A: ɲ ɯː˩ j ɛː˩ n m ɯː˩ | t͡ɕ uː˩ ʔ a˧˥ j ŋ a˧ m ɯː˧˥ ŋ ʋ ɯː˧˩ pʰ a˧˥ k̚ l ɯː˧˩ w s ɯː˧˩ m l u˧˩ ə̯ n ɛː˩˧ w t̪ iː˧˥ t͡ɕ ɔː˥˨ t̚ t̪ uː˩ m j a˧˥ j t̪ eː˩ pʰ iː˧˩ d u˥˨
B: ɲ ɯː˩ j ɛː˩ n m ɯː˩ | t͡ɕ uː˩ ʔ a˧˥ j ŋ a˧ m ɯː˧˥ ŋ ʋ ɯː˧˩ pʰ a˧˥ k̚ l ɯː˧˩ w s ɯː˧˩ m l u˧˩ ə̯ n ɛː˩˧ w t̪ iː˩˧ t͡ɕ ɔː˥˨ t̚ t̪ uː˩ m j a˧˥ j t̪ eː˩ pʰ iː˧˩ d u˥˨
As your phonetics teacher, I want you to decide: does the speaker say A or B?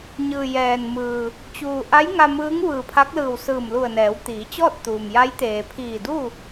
B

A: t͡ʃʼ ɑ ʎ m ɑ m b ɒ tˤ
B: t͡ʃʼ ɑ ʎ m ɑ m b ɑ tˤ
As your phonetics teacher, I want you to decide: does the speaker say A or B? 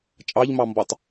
A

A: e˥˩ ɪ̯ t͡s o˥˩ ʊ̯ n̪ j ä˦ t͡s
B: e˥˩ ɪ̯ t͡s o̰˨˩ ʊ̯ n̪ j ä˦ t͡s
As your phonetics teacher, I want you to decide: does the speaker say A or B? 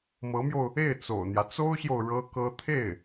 B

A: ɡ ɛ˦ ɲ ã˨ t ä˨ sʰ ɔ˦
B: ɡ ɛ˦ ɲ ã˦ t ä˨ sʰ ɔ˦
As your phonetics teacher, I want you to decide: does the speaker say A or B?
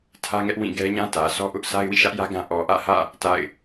B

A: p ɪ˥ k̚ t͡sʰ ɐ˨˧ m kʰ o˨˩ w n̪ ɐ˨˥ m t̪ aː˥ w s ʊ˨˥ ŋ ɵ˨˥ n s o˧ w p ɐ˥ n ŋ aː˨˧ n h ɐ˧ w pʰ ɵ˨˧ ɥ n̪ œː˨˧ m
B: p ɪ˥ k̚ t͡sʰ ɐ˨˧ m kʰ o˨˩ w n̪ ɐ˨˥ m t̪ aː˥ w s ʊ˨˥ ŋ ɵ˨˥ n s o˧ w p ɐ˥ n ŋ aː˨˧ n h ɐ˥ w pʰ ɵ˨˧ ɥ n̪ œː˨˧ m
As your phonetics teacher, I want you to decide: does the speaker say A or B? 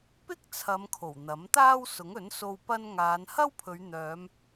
B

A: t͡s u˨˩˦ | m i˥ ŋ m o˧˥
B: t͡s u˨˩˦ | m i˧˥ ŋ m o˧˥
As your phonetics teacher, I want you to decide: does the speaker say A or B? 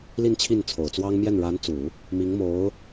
B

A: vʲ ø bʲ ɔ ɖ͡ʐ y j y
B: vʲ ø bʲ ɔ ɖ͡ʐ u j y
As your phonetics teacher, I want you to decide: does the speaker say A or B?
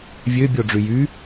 A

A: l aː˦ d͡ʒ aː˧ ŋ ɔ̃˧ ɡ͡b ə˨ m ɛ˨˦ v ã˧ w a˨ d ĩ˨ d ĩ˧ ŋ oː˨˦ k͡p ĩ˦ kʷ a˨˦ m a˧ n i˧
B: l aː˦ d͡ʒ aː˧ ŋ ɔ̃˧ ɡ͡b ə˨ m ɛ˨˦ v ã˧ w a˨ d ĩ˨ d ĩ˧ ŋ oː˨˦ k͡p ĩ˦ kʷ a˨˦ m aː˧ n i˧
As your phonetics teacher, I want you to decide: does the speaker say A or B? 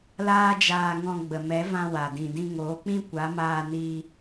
B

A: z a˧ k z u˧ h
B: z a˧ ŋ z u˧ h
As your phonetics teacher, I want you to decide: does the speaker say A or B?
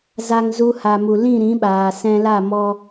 B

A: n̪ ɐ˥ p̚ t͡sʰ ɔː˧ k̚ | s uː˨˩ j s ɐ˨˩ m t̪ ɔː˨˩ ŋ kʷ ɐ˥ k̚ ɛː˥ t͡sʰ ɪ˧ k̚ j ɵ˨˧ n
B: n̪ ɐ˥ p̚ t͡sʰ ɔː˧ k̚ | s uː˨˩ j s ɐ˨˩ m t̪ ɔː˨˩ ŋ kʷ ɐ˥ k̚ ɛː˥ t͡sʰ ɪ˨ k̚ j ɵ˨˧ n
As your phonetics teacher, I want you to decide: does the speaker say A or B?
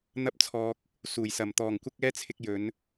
A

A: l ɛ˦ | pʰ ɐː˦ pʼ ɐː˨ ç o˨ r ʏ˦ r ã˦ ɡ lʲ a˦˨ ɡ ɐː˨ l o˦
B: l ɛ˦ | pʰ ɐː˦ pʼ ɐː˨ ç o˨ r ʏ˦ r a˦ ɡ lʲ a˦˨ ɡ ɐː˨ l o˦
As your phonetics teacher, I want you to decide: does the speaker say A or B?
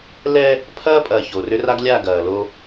B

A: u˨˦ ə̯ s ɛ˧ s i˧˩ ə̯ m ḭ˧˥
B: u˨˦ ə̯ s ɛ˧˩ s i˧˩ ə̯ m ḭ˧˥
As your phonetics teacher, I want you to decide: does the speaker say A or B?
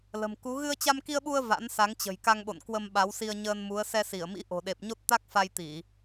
A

